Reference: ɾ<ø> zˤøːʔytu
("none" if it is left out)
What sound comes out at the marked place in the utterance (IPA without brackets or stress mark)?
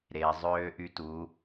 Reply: e